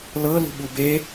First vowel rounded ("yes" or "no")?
no